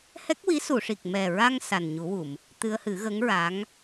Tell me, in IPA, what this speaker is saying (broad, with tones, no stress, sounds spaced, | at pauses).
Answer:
h ɛ˦˥ k̚ w i˧˥ s u˨˩˨ ʂ i˨˩ k̚ m ɛ˨˩ ɹ a˧ ŋ s a˨˩ n ɲ u˨˩˦ w u˨˩˨ m | t̪ ɨ˧ ə̯ h ɨ˨˩˦ ɣ ə˧˥ ŋ ɹ a˧˥ ŋ